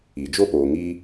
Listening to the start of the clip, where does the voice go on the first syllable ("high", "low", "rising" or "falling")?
low